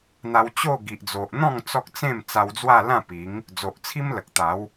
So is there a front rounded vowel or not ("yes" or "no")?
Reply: no